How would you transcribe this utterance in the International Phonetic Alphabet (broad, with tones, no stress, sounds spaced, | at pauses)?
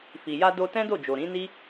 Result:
f i˨ j a˧ d o˧ t ɛ̃˦ d o˦˨ d͡ʒ o˨ ɾ ĩ˨˦ n i˦